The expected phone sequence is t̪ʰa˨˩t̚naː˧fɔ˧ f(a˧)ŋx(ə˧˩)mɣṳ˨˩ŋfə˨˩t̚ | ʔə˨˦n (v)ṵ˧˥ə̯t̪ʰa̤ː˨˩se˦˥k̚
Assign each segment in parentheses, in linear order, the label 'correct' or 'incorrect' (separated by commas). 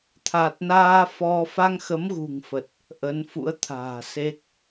correct, incorrect, incorrect